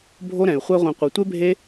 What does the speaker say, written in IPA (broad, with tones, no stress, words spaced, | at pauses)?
bʱo˦ɾɛ̃˨y̯ χʷɛ˦ʁʷɛ̃˧ qʷi˨tʷe˦bʱe˦